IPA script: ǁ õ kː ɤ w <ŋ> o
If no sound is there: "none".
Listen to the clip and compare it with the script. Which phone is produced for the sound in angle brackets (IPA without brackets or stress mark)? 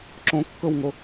ŋ